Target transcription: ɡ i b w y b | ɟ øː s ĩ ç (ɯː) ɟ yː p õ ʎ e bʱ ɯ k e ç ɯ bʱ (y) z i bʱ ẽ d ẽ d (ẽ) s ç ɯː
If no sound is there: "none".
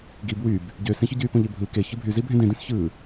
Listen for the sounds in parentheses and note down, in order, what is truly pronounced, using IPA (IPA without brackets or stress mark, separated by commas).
ɯ, y, ĩ